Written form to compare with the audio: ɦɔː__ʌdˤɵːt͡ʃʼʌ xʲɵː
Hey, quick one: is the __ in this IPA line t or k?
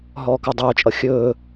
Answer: k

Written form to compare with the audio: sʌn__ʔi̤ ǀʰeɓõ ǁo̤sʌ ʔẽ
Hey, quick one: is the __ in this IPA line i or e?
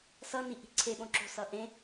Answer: i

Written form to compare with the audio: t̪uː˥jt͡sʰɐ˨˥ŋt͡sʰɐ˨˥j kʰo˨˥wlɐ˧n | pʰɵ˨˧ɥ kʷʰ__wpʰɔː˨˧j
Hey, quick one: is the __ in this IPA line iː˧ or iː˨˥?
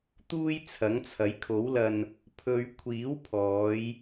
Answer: iː˨˥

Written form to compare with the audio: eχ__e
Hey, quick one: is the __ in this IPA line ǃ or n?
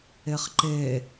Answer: ǃ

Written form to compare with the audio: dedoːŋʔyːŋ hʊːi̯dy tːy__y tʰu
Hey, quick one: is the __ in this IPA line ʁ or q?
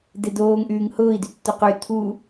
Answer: q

